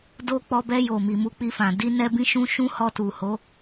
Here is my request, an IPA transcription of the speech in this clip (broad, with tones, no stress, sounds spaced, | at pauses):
d o˧ k͡p ɔ˧ b ɛ˧ j o˨ m i˨ m u˨˦ k͡p i˧ f ã˨ d i˧ n ɛ˧ b ĩ˧ ʃ ũ˧ ʃ ũ˦ h ɔ˧ t u˨ h o˨˦